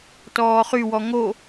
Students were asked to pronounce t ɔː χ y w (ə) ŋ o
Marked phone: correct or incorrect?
incorrect